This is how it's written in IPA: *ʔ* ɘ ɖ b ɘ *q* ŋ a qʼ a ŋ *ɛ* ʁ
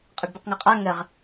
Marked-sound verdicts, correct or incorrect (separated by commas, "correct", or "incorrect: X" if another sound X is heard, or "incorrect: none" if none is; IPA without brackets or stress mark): incorrect: qʼ, correct, incorrect: ɘ